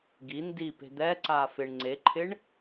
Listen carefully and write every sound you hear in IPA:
ɡ i n d i p e̤ d̪ ɛ ǀ aː f ɪ ɳ ŋ͡ǀ e ǃʰ ɪ ɳ

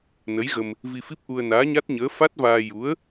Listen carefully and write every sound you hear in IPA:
n ə˧˥ j ɣ ə˧ m | v i˧ f i˦˥ p̚ ʔ u˧ ə̯ n aː˧˥ ɲ a˦˥ t̚ ɲ əː˧˥ f a˦˥ t̚ v aː˧ j u˧˥ ə̯

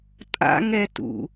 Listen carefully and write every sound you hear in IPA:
tʼ a̰ ŋ ɛ t ṵ

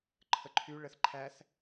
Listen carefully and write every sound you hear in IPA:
ǃʰ ə ǃʰ y ɭ ə θ ǃʰ æ θ

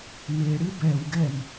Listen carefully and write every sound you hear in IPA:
m e ɽ ɨ b ɛ w ɡ ɛ m

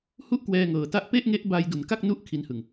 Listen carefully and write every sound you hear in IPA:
h u˥˩ ʔ k w ɛː˧ ŋ ɤː˨˩ t a˦˥ ʔ p e˥˩ ʔ ŋ e˦˥ ʔ b a˧ j d u˩˦ n k a˥˩ k̚ n u˦˥ ʔ kʰ i˧ n h ɯ˨˩ ŋ

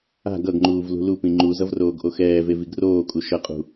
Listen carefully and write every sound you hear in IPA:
a̤ ɡ ʌ ɡ ŋ͡ǃ uː v l ṳ l u p ĩ ŋ͡ǃ u z ʌ v r oː ɡ ʔ o x ɛː v e v i ɡ r oː kʼ u ʃ ʌ qʼ ṳ

